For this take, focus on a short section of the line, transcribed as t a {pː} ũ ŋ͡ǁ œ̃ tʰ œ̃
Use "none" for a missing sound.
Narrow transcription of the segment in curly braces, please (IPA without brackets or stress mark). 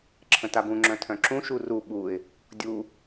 b